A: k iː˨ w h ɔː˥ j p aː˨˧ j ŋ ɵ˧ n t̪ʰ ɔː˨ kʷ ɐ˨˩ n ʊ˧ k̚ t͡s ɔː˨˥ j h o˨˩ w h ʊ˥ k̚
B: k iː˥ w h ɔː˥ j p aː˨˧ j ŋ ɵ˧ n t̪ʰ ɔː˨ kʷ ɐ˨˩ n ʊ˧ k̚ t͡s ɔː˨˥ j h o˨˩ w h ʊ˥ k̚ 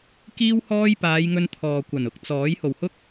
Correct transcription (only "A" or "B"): B